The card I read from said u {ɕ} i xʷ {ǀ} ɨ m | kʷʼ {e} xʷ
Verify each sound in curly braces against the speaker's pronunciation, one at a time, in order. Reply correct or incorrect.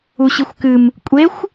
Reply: correct, incorrect: k, correct

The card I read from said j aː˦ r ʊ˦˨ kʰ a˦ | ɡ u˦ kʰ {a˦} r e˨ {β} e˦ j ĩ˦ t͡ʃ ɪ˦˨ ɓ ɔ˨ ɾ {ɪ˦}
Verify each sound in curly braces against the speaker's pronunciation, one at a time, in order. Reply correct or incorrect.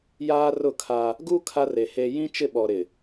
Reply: correct, incorrect: h, incorrect: ɪ˨

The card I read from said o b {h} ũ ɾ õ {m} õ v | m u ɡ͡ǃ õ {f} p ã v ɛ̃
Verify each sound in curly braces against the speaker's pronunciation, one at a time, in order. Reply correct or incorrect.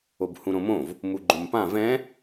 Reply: correct, correct, incorrect: m

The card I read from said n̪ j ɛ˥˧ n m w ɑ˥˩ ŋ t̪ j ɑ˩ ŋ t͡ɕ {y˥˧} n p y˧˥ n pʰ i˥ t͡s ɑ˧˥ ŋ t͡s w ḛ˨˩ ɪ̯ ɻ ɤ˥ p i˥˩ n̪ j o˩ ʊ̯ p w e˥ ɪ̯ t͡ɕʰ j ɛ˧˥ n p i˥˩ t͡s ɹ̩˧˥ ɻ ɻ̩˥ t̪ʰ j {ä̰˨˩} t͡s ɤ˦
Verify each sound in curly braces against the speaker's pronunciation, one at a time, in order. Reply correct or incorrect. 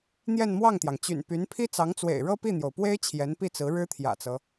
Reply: incorrect: y̰˨˩, correct

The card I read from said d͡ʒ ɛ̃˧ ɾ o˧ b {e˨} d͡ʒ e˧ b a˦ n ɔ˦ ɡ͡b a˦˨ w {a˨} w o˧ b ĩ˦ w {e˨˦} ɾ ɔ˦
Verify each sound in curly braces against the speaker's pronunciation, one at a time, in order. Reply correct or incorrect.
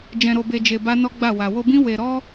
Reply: incorrect: e˧, correct, incorrect: e˧

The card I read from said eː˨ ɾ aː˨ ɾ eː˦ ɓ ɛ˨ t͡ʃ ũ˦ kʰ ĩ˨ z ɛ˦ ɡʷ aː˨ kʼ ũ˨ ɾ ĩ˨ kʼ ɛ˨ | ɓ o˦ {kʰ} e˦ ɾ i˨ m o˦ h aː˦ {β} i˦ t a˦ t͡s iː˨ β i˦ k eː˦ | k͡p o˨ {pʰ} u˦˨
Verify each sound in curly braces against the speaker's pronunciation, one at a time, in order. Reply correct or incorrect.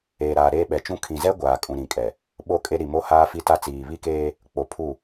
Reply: incorrect: kʼ, incorrect: f, correct

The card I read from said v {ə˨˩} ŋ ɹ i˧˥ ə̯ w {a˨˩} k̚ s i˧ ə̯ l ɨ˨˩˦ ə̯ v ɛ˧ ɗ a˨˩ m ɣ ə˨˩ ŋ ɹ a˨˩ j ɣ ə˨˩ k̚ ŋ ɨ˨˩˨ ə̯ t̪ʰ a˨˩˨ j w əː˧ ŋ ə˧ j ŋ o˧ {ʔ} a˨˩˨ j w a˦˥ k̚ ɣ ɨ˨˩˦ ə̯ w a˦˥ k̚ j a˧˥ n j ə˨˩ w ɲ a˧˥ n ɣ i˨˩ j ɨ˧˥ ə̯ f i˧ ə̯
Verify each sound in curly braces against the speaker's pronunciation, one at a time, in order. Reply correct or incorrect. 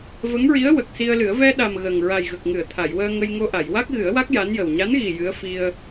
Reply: incorrect: ə˧˥, incorrect: ə˨˩, correct

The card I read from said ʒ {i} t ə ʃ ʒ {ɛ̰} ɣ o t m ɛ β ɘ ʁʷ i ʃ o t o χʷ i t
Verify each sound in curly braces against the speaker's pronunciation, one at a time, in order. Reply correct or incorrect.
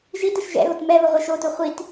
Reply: correct, correct

